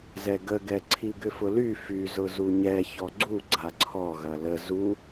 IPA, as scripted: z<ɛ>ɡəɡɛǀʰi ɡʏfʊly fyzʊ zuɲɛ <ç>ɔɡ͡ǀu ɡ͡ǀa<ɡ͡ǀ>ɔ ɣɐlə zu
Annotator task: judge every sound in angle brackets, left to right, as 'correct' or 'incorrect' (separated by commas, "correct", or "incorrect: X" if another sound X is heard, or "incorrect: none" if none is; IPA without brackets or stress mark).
correct, correct, incorrect: ǀʰ